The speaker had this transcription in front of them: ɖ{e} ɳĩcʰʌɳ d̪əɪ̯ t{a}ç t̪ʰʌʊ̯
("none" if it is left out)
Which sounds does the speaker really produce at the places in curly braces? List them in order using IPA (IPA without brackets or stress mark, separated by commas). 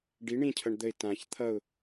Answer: i, ã